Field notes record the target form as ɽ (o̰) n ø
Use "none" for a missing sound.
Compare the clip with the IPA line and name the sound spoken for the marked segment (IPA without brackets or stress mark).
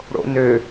o̰